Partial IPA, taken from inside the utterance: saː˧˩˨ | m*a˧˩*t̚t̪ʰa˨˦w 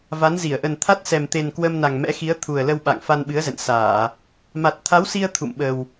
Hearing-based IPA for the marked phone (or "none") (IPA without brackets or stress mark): a˨˩